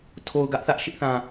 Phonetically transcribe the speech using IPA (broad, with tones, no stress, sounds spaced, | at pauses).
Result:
tʰ o˨ ʊ̯ ɡ ä˦ ʔ θ ä˦ ʔ ʃ ɪ˦ ʔ θ ã˨